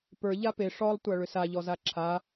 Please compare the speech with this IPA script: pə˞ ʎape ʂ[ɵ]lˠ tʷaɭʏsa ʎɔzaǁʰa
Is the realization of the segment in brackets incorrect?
yes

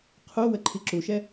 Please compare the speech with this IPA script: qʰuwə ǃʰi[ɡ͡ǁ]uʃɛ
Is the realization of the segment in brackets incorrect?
yes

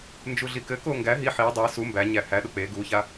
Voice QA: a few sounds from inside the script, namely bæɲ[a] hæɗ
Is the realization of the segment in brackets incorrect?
yes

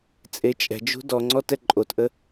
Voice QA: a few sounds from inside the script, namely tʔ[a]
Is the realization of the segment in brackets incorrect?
yes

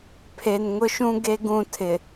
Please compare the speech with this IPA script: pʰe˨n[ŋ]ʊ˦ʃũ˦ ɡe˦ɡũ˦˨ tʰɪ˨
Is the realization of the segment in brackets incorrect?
no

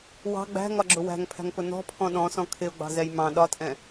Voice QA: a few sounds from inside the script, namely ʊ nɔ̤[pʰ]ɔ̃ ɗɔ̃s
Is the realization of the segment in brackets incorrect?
no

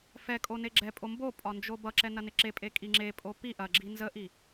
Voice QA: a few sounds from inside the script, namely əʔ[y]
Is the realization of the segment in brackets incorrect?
yes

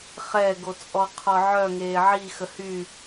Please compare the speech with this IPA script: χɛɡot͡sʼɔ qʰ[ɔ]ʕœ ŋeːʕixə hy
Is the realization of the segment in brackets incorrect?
no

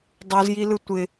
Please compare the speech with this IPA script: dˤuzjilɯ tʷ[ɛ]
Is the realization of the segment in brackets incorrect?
yes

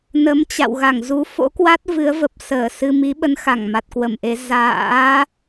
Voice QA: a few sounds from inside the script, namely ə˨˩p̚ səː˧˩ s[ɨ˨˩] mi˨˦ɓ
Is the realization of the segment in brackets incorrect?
yes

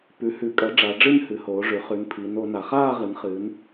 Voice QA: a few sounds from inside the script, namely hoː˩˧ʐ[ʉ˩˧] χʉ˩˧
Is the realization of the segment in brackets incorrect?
no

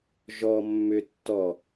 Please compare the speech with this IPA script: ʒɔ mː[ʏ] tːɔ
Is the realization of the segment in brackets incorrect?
no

